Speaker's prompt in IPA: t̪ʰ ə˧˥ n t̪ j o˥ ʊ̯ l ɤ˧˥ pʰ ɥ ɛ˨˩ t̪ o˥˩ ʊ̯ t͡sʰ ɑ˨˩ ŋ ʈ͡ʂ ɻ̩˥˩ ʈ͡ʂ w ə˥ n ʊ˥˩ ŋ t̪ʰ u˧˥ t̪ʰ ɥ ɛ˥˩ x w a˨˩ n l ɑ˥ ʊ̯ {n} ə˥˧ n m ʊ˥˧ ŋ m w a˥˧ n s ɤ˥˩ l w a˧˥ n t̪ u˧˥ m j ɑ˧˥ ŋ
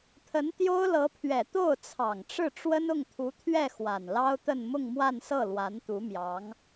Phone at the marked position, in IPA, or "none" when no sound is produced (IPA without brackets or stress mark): t̪